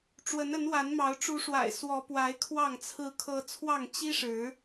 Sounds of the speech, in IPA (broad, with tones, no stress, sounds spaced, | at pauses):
ʈ͡ʂ w ə˨˦ n ə˨˦ n w a˨˦ n m ɑ˨˦ ʊ̯ ʈ͡ʂ u˨˦ ʂ w a̰˨˩ ɪ̯ s w ɔ˨˦ p w a˨˦ ɪ̯ kʰ w ɑ˥˨ ŋ t͡sʰ ɹ̩˦ kʰ ɤ˦ t͡sʰ w ɑ˥˨ ŋ t͡ɕ i˦ ʂ ɻ̩˨˦